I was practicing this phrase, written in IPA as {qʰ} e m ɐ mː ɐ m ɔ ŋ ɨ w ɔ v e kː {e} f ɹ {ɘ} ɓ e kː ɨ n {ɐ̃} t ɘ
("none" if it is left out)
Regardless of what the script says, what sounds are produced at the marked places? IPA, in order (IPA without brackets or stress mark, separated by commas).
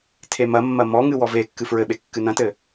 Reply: tʰ, ɨ, ɘ, ɐ̃